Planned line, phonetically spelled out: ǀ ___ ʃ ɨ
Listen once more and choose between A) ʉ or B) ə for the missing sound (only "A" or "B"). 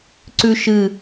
A